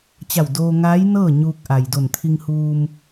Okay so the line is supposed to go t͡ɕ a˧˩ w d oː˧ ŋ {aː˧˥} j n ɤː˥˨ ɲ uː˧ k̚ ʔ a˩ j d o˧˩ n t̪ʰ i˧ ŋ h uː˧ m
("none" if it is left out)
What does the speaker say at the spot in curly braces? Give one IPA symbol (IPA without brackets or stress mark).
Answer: aː˧˥